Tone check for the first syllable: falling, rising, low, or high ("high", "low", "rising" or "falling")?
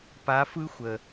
rising